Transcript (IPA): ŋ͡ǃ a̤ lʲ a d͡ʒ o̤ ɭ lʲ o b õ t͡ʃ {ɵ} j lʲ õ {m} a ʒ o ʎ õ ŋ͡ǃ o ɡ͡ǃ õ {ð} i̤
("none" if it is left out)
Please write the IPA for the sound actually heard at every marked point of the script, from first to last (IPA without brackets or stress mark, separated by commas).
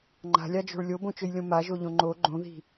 ɵ, m, ð